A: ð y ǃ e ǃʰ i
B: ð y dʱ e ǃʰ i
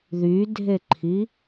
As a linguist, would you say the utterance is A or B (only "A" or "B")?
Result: B